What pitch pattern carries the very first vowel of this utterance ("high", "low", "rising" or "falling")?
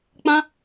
high